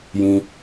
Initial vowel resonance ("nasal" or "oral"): nasal